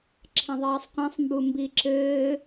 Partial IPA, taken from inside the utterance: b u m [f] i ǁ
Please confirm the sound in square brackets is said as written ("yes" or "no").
no